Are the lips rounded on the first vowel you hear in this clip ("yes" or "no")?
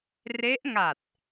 no